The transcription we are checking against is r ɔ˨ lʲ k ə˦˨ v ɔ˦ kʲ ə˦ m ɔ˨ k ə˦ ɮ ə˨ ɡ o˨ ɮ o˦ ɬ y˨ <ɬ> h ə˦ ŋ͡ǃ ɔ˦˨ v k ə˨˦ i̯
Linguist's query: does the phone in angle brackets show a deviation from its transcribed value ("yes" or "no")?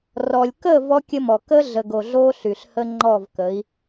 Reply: no